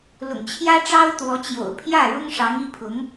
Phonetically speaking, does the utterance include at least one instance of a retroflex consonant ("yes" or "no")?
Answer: yes